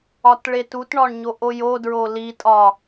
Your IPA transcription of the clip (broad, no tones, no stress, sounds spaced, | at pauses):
ɒ t ɭ e t u t ɳ ɒ ɳ ɲ o ʔ o j o d ɹ o l i tʼ ɒ